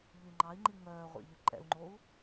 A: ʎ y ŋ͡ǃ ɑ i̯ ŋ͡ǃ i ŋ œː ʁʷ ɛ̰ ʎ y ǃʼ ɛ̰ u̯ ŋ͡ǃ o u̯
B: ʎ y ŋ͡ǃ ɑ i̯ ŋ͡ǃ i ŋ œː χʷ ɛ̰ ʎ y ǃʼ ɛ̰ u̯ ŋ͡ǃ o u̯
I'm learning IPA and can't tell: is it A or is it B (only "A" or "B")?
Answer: A